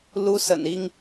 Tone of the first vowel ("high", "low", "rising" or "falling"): high